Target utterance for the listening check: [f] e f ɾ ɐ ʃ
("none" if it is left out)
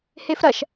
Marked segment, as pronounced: h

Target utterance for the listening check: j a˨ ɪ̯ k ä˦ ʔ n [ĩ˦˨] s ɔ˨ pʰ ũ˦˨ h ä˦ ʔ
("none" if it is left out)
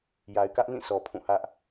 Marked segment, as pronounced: ĩ˦˨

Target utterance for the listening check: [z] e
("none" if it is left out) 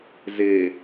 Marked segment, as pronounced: z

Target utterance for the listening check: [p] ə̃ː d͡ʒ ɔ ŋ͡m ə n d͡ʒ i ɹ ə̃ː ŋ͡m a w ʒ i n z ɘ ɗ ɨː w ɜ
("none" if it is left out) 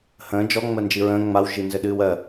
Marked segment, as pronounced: h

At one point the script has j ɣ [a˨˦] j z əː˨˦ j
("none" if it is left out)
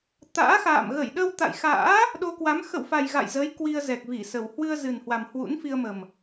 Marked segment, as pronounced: a̰˧˨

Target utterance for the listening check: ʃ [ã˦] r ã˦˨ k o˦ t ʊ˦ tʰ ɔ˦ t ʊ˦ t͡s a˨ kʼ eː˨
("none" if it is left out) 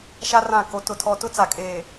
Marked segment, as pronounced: a˦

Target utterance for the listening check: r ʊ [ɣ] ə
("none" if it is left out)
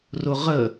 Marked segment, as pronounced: ʁ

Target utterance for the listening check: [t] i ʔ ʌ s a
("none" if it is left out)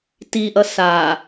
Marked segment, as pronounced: t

